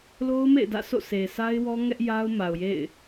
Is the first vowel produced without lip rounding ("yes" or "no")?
no